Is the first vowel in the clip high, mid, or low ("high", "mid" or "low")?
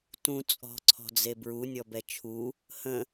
high